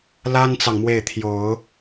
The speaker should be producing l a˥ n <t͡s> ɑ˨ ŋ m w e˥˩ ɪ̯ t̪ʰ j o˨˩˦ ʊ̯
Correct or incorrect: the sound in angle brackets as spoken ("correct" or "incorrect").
correct